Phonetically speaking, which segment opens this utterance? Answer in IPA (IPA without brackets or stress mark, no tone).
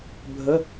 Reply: bʱ